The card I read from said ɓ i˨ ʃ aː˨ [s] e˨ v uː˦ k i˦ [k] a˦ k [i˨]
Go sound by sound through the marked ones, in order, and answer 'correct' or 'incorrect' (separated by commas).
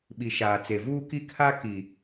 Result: incorrect, incorrect, correct